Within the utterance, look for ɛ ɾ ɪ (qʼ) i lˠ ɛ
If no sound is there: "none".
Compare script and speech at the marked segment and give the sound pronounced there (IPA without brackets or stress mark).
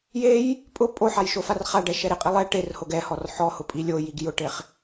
qʼ